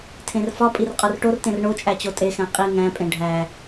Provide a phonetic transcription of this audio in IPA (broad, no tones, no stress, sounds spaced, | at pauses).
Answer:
tʰ ẽ r f ɒ pʼ i r qʼ ɒ r ʈ o r t ẽ r ɳ o t͡ʃʼ æ t͡ɕ o tʼ e x æ̃ qʼ i ŋ æ̃ pʼ ẽ ɖʱ æ